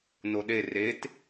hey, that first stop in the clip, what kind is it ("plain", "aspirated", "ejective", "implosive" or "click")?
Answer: implosive